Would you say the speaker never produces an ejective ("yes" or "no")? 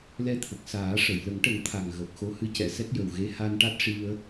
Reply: yes